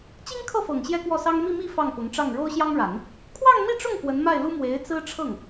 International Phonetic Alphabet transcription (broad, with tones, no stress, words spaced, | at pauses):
t͡ɕi˥ŋkʰɤ˥˩fɤ˨˩ŋ ɕjɛ˥kwɔ˥˩sɑ˥ŋ mi˥˧mi˥˧ fɑ˥˩ŋpʊ˧˥ŋʈ͡ʂɑ˥˩ŋ ɻo˥ʊ̯ɕjɑ˥ŋɻa˨˩˦n | kʰwɑ˥˧ŋmi˥˧ʈ͡ʂʊ˥˩ŋ kwə˧˥nma˥˩ɪ̯lu˥ mwe˧˥ɪ̯t͡sɹ̩˥ʈ͡ʂʰɤ˥˩ŋ